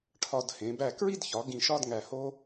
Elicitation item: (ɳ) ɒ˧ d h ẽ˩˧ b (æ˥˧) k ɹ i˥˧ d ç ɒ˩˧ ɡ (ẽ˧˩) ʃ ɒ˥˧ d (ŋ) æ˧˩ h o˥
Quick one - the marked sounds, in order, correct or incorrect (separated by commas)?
incorrect, incorrect, incorrect, correct